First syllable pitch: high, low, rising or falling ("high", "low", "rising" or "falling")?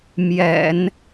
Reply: low